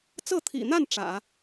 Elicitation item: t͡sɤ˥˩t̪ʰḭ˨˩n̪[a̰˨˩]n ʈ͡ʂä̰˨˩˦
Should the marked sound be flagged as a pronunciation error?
yes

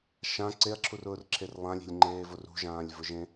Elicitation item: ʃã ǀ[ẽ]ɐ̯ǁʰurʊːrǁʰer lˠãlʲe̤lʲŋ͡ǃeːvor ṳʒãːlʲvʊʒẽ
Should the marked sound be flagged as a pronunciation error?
yes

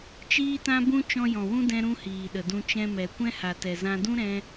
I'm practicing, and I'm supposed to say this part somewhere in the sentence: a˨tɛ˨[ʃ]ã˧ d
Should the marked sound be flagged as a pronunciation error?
yes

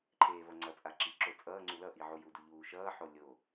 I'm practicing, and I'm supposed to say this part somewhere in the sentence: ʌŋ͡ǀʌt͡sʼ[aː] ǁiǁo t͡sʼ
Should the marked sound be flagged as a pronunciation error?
yes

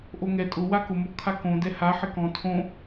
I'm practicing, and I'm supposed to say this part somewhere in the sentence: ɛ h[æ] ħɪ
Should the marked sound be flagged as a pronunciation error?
yes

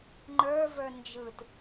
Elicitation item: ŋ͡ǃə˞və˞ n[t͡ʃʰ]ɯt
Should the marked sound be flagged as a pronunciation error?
yes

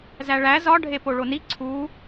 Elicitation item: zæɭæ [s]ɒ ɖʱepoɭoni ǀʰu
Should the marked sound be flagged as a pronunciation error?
yes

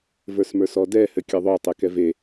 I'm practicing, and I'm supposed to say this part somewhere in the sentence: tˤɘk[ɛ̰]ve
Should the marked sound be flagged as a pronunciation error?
yes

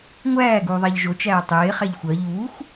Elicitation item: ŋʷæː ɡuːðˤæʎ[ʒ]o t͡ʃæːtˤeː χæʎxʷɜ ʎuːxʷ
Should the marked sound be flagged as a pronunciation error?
no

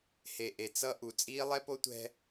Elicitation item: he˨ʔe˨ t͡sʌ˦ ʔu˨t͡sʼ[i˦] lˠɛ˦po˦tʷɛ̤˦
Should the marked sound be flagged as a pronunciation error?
yes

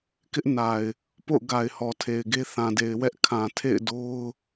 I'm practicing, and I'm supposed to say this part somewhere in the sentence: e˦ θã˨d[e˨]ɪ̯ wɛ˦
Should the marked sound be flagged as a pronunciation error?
no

